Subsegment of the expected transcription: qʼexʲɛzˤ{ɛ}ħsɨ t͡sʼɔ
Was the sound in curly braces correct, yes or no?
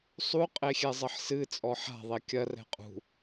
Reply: no